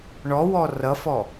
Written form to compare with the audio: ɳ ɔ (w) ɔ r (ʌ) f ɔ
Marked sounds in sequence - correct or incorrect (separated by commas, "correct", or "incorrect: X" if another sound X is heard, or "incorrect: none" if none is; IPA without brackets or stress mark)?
correct, correct